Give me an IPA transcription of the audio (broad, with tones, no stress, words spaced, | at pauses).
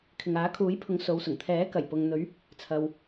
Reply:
kʰɪ˨ŋaː˨˥kʰuː˨˥jpʰʊ˨˥ŋ so˨˧wsʊ˨˩ŋ t̪ʰɛː˨˥ kɐ˨˩jpʊ˨ŋn̪ɵ˨˧ɥ | t͡sʰɐ˨w